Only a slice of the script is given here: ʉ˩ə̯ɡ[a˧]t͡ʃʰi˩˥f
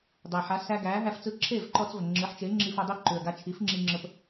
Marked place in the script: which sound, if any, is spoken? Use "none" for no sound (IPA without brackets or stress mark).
a˧